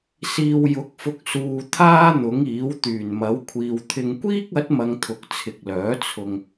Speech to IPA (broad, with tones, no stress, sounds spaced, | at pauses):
s iː˨ w j ʊ˨˥ k̚ f ʊ˨ k̚ s uː˨ t̪ʰ aː˥ n̪ ʊ˨˥ ŋ iː˨˥ w t̪ yː˨˩ n m ɐ˨˥ w kʷʰ iː˨ w t̪ʰ ɪ˨ ŋ kʷ iː˥ k̚ ɐ˨˥ t̚ m ɐ˧ ŋ t̪ʰ ʊ˨ k̚ t͡sʰ ɪ˨ k̚ l œː˨˥ t͡sʰ ʊ˨ ŋ